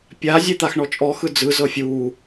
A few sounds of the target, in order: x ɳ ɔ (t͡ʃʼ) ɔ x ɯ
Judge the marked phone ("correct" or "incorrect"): correct